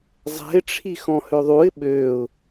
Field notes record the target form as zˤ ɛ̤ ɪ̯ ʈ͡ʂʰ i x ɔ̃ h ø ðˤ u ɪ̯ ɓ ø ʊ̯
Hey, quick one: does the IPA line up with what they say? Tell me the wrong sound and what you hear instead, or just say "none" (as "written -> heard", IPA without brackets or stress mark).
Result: none